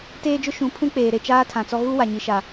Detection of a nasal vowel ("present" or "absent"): present